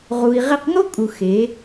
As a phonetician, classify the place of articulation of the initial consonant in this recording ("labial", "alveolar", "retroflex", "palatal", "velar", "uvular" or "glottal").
uvular